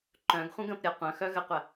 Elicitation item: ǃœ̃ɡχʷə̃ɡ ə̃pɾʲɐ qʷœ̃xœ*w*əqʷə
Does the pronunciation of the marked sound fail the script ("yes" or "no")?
yes